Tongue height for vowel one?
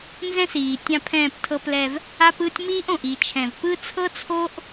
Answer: mid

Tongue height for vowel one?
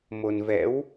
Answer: mid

